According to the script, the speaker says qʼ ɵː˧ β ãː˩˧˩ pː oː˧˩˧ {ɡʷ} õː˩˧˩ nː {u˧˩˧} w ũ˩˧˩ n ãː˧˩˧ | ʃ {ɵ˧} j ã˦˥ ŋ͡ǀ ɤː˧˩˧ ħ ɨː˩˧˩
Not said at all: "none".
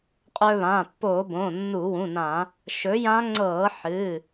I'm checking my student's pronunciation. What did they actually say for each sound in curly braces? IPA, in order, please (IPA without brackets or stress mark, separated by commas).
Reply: b, u˧˩˧, ɵ˨˥